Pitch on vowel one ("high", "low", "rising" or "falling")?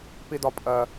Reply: high